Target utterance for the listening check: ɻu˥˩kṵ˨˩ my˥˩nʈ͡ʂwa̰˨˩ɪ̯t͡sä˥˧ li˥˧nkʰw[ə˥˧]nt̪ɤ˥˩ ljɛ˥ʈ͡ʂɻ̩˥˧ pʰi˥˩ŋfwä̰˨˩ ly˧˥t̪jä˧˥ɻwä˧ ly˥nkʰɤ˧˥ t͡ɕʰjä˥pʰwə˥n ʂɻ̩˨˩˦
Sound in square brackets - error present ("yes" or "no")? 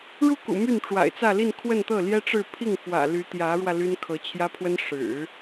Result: no